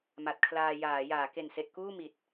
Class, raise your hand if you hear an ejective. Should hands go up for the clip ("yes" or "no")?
no